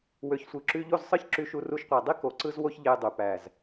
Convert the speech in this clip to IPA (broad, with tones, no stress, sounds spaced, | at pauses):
w ø˨ ç sʷ ɯ˨ ǁ y˧ ʎ o˦˨ z sˤ ɯ˦ ç ǁ y˧ ʃ u˧ r u˧ ʃ qʷ æ˨ dˤ i˦ k o˨ ǀ ɯ˧ z w o˧ ç ʎ e˧ j dˤ y˨ p æ˨ z